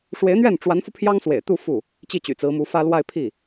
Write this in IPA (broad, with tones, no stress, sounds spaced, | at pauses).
ʂ w e˧˥ ɪ̯ n̪ ɥ ɛ˥˩ n ʈ͡ʂ w a˧˥ n f u˧ pʰ j ɑ˥ ŋ s w ḛ˨˩ ɪ̯ t̪ u˥˧ f u˥˩ | t͡ɕ i˥˩ t͡ɕ y̰˨˩ t͡s ɹ̩˧˥ m u˧˥ f ä˥ l w a˥˧ ɪ̯ pʰ i˥˩